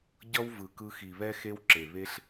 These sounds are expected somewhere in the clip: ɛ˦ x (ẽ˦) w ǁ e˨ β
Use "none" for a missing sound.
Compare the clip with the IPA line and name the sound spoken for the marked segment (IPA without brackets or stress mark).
e˦